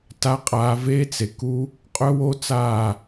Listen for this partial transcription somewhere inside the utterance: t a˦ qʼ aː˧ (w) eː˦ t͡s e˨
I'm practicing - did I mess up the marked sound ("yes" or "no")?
yes